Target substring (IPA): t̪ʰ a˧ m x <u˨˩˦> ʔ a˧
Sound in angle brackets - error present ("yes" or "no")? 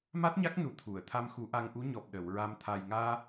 no